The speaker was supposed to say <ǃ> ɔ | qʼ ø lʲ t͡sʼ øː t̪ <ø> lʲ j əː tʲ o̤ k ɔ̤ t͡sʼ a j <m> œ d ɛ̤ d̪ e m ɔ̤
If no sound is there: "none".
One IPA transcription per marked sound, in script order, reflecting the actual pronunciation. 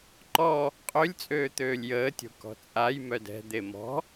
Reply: ǃ, øː, m

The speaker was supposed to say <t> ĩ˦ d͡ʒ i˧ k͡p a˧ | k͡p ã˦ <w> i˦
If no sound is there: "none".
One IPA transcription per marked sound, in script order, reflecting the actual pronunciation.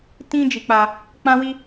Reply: t, w

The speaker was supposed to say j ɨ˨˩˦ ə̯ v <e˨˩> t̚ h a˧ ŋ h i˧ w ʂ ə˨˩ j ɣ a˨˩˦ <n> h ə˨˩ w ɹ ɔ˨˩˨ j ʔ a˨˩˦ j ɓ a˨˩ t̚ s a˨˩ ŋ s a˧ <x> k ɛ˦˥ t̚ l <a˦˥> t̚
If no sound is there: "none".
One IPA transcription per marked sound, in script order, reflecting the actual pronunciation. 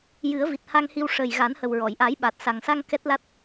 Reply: i˨˩, n, ŋ, a˦˥

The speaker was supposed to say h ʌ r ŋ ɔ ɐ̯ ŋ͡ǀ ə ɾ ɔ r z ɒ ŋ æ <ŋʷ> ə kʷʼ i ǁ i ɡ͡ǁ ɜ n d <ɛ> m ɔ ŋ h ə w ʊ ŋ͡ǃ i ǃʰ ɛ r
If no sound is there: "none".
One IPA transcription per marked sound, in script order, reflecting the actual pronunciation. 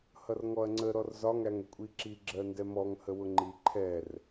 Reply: ŋ, ɛ

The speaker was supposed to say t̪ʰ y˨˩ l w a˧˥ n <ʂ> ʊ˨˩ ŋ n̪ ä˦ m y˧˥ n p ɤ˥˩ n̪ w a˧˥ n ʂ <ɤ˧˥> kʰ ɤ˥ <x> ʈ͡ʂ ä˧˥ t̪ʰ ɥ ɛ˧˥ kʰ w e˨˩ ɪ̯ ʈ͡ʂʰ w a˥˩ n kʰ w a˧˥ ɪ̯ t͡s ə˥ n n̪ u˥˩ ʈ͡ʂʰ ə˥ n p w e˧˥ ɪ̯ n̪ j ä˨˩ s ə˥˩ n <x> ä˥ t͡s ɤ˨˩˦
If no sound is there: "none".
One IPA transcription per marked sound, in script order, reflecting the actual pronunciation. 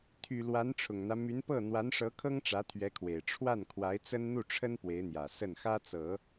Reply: ʈ͡ʂʰ, ɤ˧˥, ŋ, x

